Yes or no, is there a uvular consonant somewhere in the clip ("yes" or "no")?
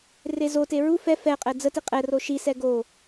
yes